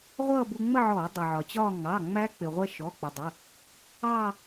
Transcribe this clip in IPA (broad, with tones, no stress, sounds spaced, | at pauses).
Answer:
ʁʷ ʌː˥˧ b u˧ ŋ͡m ə˥˧ ʕ ɔː˧˩˧ dˤ ʊ˩ ʕ ɒ˩ t͡ɕ ɒː˥˧ ŋ ɑ˩˧˩ ŋ͡m æ˦˥ k͡p ɪ˩ ʁʷ ɛ˧ ʃ ɔ˩˧˩ k͡p ə˩ dˤ ə˩˧˩ | ɑ˥˧